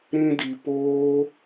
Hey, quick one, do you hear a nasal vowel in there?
yes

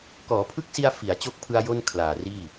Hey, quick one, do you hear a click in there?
no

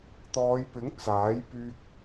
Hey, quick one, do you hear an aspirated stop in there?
no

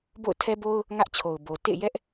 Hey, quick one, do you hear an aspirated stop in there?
yes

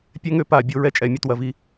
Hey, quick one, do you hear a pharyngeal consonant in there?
no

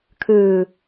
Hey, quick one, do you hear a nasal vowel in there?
no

